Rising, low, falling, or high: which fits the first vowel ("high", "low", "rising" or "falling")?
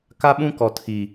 high